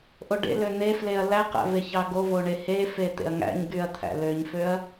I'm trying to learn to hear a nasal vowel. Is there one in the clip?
no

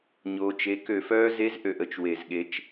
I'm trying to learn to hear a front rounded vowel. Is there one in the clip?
yes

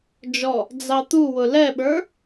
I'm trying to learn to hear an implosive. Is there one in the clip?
yes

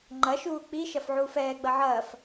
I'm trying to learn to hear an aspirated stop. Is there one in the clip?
no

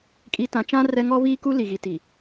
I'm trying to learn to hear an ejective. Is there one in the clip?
yes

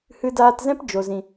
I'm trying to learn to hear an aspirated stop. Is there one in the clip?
no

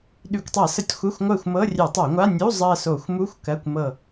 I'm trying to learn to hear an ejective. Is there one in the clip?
no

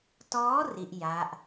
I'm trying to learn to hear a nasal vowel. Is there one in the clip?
no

